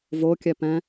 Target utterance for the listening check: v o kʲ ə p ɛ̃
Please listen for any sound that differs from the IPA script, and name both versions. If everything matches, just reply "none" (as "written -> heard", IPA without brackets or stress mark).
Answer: ə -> ɛ